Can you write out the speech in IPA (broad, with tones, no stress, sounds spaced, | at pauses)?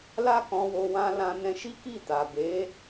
l a˦ k ɔ̃˧ w o˧ w ã˧ l ã˧ n ɛ̃˧ ʃ i˦ k i˦˨ t a˨ b e˨˦